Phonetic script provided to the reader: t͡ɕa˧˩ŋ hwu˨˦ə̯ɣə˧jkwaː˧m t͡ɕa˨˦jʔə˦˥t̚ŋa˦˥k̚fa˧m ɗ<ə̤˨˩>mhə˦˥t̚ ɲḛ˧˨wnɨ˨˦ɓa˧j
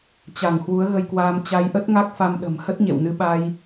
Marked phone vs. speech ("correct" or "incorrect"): correct